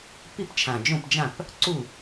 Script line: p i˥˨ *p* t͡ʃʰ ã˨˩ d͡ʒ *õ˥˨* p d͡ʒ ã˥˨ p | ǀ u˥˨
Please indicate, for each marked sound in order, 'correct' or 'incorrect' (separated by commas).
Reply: correct, correct